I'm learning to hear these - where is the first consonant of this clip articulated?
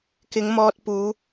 velum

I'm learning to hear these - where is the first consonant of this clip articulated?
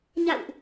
palate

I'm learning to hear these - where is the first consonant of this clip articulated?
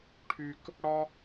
retroflex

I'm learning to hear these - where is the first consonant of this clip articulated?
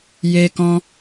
palate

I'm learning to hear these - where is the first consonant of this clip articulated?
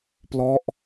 lips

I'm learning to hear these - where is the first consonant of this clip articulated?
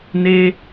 tongue tip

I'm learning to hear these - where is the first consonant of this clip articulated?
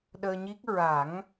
tongue tip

